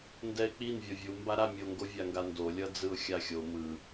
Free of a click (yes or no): yes